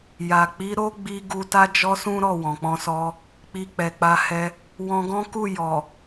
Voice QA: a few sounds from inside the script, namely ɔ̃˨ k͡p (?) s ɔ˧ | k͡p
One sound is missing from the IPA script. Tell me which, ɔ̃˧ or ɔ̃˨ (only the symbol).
ɔ̃˧